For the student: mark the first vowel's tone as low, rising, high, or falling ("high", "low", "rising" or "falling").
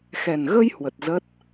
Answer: low